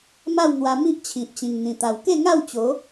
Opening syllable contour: falling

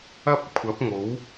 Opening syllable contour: high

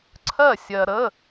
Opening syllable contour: falling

